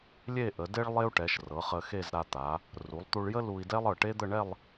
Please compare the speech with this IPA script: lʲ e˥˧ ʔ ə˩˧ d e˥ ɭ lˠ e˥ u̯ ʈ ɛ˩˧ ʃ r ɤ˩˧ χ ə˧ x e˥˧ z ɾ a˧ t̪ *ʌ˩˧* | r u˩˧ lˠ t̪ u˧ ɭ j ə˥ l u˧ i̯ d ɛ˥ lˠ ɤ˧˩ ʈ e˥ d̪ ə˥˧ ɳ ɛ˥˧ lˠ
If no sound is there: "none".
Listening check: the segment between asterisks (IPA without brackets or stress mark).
a˩˧